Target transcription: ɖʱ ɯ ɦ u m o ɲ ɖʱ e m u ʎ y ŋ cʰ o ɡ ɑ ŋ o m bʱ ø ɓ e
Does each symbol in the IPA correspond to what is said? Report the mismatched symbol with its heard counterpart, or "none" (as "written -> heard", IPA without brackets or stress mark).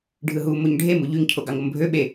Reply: none